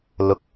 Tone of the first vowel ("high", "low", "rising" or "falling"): low